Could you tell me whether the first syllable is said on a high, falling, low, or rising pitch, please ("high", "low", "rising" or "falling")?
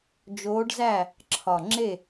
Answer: rising